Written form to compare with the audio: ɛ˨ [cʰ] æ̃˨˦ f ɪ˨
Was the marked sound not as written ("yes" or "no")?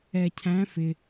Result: no